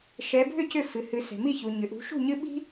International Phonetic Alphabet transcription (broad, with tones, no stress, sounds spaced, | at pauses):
ʃ ɛ˨˦ bʱ ʏ˥˨ c ʏ˥˨ f ɨ˨ h ɨ˨˦ s ɛ̤˨ m i˥˨ ç u˨ ɲ ʏ˨ ʔ ṳ˨˦ ʃ ṳ˥˨ ɲ ɨ˦ ɓ i̤˦